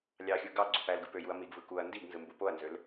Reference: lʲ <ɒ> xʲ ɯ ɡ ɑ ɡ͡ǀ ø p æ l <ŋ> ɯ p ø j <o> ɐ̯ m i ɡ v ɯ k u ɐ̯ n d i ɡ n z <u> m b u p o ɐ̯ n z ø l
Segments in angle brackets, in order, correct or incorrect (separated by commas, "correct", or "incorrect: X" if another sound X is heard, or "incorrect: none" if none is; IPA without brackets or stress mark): incorrect: ɑ, incorrect: ɡ, incorrect: u, incorrect: ɯ